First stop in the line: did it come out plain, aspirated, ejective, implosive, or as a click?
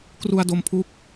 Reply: plain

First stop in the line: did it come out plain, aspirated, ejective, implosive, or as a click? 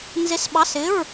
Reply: implosive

